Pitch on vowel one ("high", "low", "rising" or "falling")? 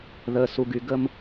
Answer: low